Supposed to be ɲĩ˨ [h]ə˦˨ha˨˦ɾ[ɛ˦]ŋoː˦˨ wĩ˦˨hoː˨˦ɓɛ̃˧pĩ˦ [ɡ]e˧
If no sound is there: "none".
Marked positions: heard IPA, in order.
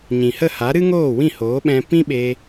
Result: h, ɨ˦, ɓ

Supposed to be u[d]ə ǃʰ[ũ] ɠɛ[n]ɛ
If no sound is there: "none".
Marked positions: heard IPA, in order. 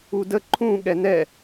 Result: d, ũ, n

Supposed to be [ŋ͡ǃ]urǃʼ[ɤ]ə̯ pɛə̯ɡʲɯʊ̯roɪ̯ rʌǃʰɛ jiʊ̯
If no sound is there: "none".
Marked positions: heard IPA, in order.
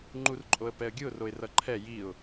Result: ŋ͡ǃ, o

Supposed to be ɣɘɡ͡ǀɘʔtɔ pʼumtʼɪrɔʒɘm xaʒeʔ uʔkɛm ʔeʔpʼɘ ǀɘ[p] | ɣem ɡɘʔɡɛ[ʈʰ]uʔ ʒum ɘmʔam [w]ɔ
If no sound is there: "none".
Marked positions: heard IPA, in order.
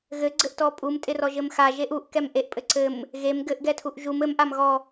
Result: m, tʰ, ɣ

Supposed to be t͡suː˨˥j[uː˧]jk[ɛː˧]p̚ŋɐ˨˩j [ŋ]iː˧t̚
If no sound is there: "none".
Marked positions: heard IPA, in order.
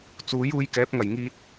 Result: uː˧, ɛː˨˥, ŋ

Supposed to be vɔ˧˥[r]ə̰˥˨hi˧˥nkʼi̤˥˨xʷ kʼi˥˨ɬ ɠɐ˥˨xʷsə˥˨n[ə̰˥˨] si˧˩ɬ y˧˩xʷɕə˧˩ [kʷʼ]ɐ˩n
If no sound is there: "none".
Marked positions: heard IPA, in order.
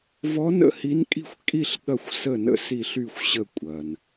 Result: n, ə̰˥˨, kʷʼ

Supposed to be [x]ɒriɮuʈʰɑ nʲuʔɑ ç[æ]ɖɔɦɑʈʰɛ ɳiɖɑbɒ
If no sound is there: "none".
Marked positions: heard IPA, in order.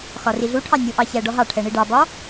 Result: x, æ

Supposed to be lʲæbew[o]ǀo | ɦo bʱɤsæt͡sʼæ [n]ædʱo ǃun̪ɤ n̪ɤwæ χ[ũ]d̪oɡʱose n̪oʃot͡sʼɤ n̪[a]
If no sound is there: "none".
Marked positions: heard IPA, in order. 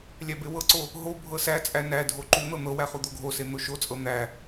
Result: ɤ, n, u, æ

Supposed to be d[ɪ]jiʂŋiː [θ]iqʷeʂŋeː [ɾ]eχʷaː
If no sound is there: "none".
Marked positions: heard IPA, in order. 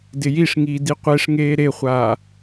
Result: ɪ, d, ɾ

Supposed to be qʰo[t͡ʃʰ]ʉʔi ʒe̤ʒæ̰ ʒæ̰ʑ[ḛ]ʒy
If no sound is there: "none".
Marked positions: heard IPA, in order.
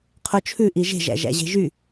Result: t͡ʃʰ, e̤

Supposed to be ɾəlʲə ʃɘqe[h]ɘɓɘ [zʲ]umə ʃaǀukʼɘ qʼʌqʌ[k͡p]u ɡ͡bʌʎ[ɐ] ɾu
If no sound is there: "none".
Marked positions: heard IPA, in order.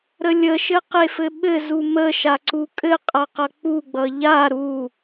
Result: f, z, k͡p, a

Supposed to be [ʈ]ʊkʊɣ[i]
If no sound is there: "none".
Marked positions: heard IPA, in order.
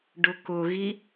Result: ɖ, i

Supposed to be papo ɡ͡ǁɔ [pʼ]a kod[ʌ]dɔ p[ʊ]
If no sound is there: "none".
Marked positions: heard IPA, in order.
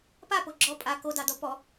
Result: pʼ, ɑ, ɔ

